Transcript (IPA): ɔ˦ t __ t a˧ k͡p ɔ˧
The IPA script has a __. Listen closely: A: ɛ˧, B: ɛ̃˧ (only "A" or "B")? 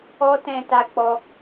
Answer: B